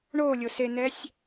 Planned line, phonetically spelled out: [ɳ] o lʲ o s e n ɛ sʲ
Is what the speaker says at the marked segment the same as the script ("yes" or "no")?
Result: yes